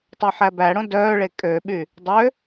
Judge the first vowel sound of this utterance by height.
low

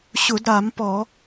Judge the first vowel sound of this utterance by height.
high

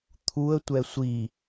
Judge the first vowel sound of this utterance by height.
high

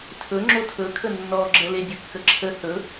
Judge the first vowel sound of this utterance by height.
mid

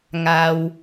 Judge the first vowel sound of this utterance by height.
low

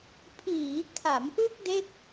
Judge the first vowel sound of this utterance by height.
high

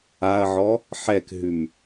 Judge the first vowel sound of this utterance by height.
low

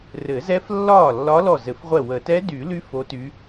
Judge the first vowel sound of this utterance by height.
mid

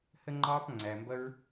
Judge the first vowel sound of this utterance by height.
mid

